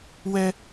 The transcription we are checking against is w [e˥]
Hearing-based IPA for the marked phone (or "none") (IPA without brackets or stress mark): ɛ˥